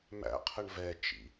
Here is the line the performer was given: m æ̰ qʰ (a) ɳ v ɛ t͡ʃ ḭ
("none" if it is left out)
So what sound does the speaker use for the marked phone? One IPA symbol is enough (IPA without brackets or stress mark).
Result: ə